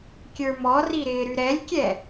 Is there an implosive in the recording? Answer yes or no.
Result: no